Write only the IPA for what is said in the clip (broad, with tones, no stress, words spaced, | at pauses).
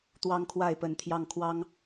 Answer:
t̪wɑ˦ŋkʰwa˥˨ɪ̯pə˨˦nt̪ʰjɑ˥˨ŋ kʰwɑ˦ŋ